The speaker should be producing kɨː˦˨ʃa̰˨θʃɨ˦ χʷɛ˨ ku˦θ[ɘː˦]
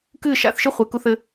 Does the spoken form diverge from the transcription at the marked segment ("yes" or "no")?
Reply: no